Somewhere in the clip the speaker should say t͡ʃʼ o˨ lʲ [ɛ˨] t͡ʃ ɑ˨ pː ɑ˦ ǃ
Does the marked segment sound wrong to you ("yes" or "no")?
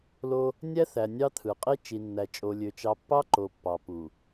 yes